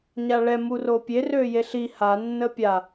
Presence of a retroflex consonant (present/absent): present